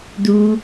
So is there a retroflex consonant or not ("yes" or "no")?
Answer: no